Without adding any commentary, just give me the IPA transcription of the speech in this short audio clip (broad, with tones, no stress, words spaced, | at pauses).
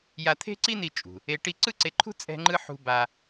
ja˧t̪ʰe̤˥ǀi˥ni˧ t͡ʃʼṳ˩ | e˧ ʈi˧ ǀɯ˥ǀe˧ǃʰṳ˥ t͡sʼɛ̤˥ŋ͡ǃɯ˥ ħṳ˧ ba˧